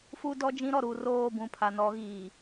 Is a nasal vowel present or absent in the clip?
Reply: present